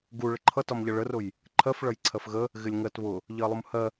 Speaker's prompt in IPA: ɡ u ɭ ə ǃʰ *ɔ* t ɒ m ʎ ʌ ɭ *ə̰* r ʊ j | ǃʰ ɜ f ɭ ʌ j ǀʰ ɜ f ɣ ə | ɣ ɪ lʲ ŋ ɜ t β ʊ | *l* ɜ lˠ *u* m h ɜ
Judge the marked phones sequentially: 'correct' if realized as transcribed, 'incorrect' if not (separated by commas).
incorrect, incorrect, incorrect, correct